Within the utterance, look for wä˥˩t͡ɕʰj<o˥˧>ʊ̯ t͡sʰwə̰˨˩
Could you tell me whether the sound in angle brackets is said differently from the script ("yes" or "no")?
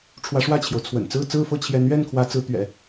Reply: yes